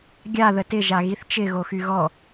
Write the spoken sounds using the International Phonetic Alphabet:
ɡʲ a ð ə t ɪ ʒ a ɣ i θ t͡ʃ ɪ ɣ o x y ɣ ɔ

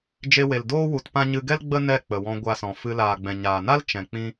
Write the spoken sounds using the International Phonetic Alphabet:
d͡ʒ e˧ w e˨ l d oː˦ w u˧ t p ã˦ ɲ ɨ˧ ɡ ɛ˦ l ɡ͡b ə˦ n ɛ˦˨ k͡p ə˨ w ɔ̃˧ ɡʷ a˧ s ɔ̃˨ f ɨ˧ l aː˨ ɡ͡b ɛ̃˨ ɲ aː˨ n a˦ l t͡ʃ ɛ̃˨ k͡p ĩ˦

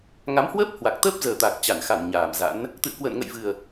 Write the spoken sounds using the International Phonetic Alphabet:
ŋ a˨˦ m h w əː˦˥ p̚ h w a˨˩ k̚ t̪ əː˦˥ p̚ z əː˨˩ t̪ a˨˩ k̚ t͡ɕ a˧˩ n x a˧˩ n ɲ aː˨˩ m z a̰˧˥ n | t̪ ɨ̰˧˨ ə̯ k w ə̰ː˧˨ n ŋ ə̰˧˨ j v ɨ˨˩ ə̯

